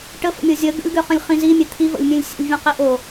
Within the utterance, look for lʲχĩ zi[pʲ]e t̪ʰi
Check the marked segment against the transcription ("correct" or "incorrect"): incorrect